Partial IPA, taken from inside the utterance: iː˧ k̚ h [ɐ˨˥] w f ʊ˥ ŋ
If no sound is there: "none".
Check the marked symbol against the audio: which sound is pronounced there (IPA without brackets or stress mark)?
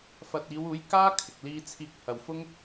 ɐ˨